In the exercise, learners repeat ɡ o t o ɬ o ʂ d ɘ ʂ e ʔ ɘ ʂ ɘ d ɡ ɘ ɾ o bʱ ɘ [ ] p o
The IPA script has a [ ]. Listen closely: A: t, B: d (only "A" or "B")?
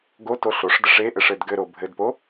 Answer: B